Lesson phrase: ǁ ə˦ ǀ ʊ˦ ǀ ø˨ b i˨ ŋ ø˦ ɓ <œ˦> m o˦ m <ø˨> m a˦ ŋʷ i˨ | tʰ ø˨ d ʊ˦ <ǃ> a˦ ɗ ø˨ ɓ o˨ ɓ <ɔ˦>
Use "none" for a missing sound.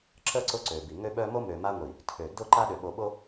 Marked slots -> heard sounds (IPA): œ˦, ø˨, ǃ, o˦

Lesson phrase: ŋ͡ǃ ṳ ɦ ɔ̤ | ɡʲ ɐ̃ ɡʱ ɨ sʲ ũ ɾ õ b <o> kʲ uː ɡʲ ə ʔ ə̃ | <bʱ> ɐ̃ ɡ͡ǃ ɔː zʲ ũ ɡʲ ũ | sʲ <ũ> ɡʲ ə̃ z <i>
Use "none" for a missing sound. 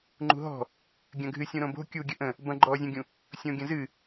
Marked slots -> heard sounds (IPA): o̤, b, õ, ɨ

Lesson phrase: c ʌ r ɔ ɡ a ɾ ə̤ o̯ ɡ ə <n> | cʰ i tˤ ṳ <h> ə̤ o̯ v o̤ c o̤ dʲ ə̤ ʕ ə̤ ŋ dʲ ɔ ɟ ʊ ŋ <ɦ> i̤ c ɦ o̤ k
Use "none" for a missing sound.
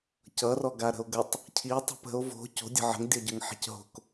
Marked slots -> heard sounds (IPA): tˤ, p, ħ

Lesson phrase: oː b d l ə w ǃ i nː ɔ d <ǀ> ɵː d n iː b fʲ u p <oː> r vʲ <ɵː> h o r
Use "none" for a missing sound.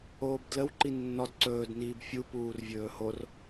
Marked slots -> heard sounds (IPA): ǀ, uː, ɵː

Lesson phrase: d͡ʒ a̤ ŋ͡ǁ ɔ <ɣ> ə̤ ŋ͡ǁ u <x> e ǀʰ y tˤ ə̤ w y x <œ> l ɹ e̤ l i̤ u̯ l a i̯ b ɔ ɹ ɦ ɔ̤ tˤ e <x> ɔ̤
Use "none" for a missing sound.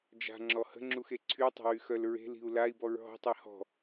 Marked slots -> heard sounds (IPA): h, x, œ, h

